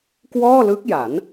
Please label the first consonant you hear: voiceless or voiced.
voiceless